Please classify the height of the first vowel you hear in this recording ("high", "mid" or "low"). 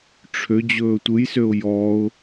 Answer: mid